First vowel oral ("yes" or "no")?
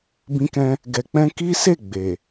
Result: no